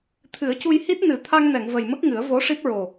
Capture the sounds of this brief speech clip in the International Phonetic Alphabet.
t̪ʰ ɨ˨˩˦ ə̯ c u˧ j h i˦˥ t̚ n ɨ˨˩˦ t̪ʰ a˧ ŋ n ɛ˨˩˨ ŋ v ə˨˩ j m ə˦˥ k̚ ŋ ɨ˨˩˦ ə̯ v o˧˥ ʂ i˦˥ p̚ ɹ o˨˩

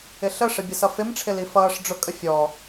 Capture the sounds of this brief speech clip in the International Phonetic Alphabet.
ɪ ɬ ə ʂ ə bʲ ə s ʌ f ɪ m ʈ͡ʂʰ ɪ l i f ʌː ʂ ɖ͡ʐ ʊ kʼ ə fʲ ɔ

